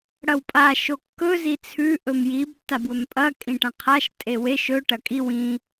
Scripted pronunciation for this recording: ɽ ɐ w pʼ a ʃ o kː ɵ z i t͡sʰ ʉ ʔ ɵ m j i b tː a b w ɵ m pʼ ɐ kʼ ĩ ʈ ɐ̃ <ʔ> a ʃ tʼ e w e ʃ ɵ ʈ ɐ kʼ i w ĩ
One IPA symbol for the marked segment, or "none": qʰ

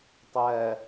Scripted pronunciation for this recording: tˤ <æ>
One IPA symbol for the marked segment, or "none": æ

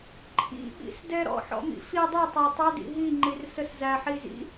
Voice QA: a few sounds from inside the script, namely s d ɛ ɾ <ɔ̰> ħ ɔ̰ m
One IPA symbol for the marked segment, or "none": ɔ̰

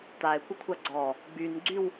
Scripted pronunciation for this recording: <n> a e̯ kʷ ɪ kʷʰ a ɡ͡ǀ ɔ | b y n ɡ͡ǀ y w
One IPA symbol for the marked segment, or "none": t̪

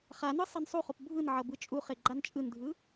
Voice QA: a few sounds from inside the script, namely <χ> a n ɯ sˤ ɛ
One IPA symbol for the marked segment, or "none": χ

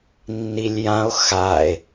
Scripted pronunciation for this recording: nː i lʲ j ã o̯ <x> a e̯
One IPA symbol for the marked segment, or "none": x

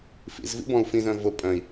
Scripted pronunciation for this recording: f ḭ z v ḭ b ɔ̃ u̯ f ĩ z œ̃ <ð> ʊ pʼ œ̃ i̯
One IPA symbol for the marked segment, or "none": v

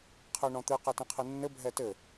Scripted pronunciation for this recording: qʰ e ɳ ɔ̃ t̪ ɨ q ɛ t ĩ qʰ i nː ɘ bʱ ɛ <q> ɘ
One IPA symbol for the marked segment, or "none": t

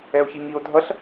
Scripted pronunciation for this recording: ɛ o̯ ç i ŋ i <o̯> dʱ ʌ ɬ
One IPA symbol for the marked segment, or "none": o̯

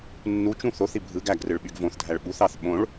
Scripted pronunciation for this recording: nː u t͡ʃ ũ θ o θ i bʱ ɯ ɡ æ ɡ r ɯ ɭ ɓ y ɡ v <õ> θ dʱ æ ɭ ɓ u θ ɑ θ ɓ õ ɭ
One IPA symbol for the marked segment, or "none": õ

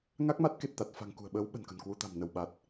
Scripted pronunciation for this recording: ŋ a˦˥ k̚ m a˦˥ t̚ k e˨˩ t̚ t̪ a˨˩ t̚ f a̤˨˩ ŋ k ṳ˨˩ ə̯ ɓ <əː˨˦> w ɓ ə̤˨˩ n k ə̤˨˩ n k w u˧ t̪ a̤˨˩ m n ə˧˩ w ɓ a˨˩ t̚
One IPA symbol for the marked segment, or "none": əː˨˦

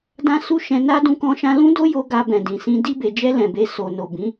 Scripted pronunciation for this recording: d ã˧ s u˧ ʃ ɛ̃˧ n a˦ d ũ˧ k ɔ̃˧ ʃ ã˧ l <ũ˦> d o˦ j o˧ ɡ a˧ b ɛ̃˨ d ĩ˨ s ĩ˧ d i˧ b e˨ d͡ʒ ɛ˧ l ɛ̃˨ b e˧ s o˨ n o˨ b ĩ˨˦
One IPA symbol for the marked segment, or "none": ũ˦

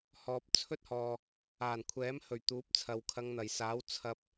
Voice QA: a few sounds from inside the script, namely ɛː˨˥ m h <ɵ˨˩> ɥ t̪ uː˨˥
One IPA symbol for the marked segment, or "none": ɵ˨˩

